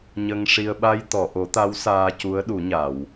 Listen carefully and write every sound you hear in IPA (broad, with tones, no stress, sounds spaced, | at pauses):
ɲ ə˧ ŋ ʂ i˧ ə̯ ɓ a˧ j t̪ ɔ˨˩˨ ʔ o˨˩˦ t̪ a˧˥ w s aː˧ c u˧˥ ə̯ ɗ u˨˩˦ ɲ a˨˩˨ w